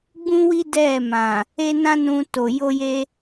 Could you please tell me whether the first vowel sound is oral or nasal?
nasal